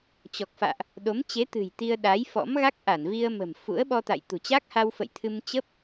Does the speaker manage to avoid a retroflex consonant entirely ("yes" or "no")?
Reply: yes